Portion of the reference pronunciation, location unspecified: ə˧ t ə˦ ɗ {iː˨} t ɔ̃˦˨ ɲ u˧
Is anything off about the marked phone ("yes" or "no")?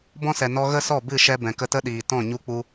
no